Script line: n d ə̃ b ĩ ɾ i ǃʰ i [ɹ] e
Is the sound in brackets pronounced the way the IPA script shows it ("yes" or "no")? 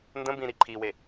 no